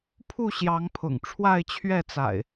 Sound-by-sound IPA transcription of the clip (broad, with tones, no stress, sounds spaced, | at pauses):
pʰ u˥˨ ɕ j ɑ˨˦ ŋ pʰ ʊ̰˨˩ ŋ ʈ͡ʂʰ w a˥˨ ɪ̯ t͡ɕʰ ɥ ɛ˥˨ t͡s a̰˨˩ ɪ̯